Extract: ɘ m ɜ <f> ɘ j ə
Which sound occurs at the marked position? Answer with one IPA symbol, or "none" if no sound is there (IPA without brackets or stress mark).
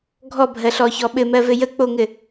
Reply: v